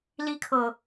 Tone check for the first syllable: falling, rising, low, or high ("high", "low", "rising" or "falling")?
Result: high